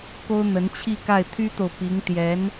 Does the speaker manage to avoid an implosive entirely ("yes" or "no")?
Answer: yes